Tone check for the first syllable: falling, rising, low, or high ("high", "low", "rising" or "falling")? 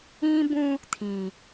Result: high